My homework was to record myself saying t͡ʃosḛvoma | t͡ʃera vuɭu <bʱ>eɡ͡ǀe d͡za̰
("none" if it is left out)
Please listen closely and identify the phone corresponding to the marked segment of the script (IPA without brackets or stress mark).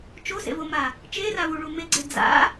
m